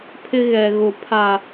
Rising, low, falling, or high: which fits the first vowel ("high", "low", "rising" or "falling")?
high